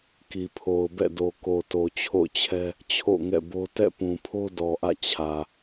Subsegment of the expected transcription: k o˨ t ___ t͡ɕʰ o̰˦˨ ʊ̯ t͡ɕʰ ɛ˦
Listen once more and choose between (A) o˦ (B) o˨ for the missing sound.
B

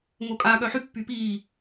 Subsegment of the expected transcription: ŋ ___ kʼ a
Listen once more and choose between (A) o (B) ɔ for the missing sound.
A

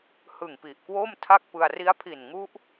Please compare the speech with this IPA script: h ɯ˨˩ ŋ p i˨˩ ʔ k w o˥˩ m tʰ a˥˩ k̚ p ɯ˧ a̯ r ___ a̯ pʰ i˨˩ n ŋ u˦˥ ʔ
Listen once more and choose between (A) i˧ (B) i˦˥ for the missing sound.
B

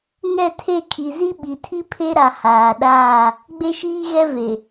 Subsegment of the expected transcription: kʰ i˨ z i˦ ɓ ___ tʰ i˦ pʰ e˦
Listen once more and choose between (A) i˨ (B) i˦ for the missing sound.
A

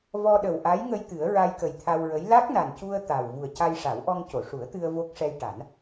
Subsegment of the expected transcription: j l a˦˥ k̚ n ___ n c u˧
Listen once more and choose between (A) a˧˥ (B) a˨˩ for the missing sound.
B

